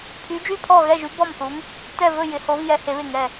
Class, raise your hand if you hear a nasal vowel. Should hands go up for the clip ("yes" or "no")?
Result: no